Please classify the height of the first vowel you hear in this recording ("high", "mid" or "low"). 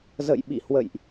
mid